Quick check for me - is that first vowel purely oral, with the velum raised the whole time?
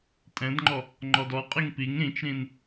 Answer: no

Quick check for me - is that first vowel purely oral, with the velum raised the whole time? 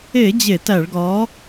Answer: yes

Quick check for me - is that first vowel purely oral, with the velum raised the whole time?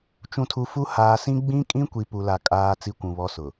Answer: no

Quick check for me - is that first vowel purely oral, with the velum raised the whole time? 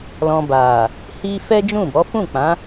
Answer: no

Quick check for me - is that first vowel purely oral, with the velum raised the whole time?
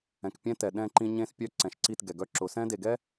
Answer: no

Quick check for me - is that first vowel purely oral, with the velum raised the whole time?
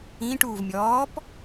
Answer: no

